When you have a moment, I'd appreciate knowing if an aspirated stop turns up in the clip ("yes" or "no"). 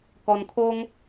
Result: yes